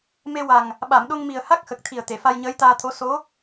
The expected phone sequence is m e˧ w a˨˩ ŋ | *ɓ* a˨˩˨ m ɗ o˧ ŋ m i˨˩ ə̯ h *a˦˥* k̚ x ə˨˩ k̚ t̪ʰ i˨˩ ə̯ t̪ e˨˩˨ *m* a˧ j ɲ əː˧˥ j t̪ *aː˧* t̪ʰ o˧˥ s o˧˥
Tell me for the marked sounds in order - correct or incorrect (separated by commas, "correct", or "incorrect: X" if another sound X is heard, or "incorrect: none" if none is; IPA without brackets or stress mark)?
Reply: correct, correct, incorrect: f, correct